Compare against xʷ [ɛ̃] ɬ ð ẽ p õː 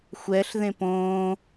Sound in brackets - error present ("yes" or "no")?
yes